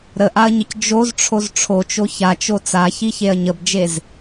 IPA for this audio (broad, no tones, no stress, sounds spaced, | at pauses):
ɾ ə ʔ a ɐ̯ ɲ ə c d͡ʒ o z ʈ͡ʂʰ o z ʈ͡ʂʰ o t͡ʃ o ç a t͡ʃ o t͡s a ç i ç e ɐ̯ ɲ ə b d͡ʒ e z